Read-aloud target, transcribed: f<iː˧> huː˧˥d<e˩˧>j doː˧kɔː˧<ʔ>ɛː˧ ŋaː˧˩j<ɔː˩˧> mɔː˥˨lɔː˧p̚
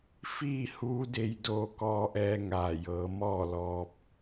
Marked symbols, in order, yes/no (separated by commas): no, no, yes, no